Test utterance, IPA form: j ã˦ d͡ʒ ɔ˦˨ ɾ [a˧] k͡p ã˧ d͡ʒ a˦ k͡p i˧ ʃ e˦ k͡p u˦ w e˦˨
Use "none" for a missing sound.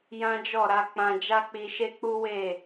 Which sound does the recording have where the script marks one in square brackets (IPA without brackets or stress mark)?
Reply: a˧